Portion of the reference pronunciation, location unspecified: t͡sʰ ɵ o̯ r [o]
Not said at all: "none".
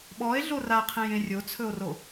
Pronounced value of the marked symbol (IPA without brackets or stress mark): o